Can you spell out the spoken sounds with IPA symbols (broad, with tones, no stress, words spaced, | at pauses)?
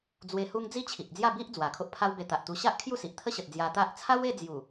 d͡zwe˧hu˦ŋ d͡zi˦t͡ɕʰi˨ʔd͡zja˥˧bi˦ʔ d͡zwa˨˩kʰo˦ʔpʰa˦wbe˧ t̪a˨ʔt̪u˧ ɕa˦ʔ kʰju˥˧si˨ʔt̪ʰə˦ɕə˨t̚ d͡zja˧t̪a˦ʔ t͡sʰa˦we˥˧d͡zju˨˩